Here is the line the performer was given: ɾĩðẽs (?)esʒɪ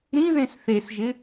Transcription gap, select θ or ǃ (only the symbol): θ